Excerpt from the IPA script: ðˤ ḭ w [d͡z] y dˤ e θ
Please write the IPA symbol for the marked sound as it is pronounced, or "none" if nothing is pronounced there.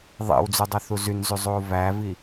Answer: d͡z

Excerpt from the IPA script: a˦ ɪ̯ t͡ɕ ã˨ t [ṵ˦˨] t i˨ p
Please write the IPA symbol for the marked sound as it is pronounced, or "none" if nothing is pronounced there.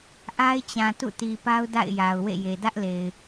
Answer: ṵ˦˨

